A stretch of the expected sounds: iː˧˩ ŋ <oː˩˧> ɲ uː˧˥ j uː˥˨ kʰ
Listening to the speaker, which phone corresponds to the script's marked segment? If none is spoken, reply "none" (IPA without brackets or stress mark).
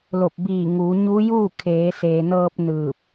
uː˩˧